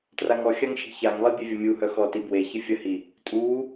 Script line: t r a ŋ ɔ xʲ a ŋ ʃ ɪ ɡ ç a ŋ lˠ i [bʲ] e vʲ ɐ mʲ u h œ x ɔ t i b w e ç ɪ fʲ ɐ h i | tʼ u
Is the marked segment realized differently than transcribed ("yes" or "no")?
no